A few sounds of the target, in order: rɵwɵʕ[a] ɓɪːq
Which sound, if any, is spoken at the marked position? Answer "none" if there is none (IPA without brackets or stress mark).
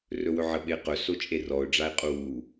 ə